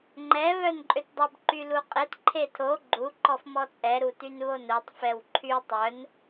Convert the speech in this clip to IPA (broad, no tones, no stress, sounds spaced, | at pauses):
ŋ͡ǃ ɛ β œ n ǃʼ ø t dˤ u b ǃ y l u qʼ e t ǃʰ e tʰ o ɡ͡ǃ u ǃ ɔ f m ɔ t͡sʼ ɛ ɾ u t y n β o n œ tˤ f ɛ w ǃʰ y tˤ œ n